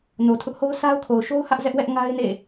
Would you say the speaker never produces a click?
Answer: yes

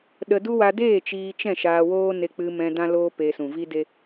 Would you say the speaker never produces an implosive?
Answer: no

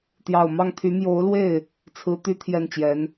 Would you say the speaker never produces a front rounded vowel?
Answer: no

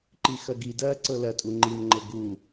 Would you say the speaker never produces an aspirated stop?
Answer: yes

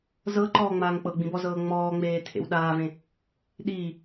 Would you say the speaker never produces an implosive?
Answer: no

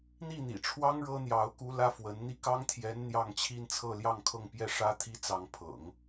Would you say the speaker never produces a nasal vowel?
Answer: yes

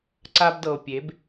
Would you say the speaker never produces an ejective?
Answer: yes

